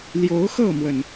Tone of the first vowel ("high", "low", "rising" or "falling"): rising